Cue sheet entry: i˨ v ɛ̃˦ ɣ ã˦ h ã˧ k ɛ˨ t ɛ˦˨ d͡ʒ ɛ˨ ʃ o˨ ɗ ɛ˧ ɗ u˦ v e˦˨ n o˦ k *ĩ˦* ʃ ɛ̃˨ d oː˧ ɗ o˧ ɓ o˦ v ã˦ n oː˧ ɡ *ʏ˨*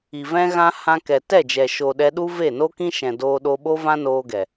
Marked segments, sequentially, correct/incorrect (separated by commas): correct, incorrect